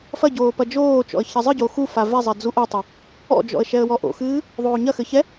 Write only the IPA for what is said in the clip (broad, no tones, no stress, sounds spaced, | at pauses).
f ɐ ɟ oː p ɐ d͡ʒ oː t͡ʃ ɔ̰ ə̯ ç ɐ zˤ ɨ ɟ o x u f a v ɛ zˤ ɛ d͡z u ʔ o tˤ o | ɔ̰ d͡ʒ ɔ̰ ə̯ ʃ ɛ ə̯ w ɔ ʔ o̰ x ɨː | ðˤ oː ɲ ɐ x ɘ ç ɛ